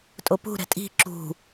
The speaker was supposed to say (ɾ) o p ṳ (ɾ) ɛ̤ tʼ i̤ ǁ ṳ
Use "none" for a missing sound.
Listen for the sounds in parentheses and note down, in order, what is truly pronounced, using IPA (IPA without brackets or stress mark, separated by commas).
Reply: tʼ, ɾ